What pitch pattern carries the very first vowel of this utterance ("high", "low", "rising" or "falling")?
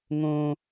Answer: high